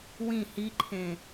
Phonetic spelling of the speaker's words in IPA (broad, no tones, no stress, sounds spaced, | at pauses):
w ĩ h i ǃʰ ẽ